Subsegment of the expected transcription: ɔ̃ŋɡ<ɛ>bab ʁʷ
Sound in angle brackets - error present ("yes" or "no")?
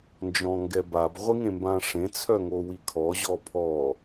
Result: no